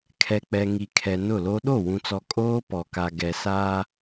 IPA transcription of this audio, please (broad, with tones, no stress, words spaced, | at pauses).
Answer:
kʰɛ˨k͡pɛ˨ŋi˨ kʰɛ˨nʊ˦˨lo˦ ɗo˦˨wũ˨t͡sɔ˨ kʼoː˦pɔ˨ka˨ ɡɛ˨sa˦